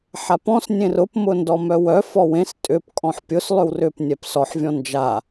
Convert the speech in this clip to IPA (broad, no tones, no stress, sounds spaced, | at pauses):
ħ a p ɔ̃ s nʲ ẽ r ʊ p m ʊ n d ɔ m œ w œ f ɔ w ẽ s tʼ ʏ p kʼ ɔ̃ ħ pʲ ʊ s lˠ ʏ w r ʏ p nʲ ɛ p s ɔ ħ vʲ ɔ̃ n d͡ʒ a